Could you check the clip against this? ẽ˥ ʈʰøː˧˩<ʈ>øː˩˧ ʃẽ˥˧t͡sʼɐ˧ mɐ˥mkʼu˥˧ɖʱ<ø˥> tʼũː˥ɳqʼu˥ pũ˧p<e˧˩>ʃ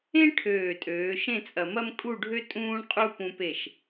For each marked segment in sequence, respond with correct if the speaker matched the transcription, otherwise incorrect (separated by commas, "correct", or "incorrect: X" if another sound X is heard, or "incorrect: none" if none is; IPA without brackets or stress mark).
incorrect: tʼ, correct, correct